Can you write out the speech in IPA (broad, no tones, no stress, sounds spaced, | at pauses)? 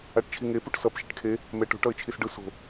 a ʈ t͡ʃʰ i ŋ e p u ʈ s ʌ p ʃ e ʈ kʰ e | m ɛ ʈ o̤ ʈ ʌ ɪ̯ t͡ʃʰ i s ɖ ɯ s o̤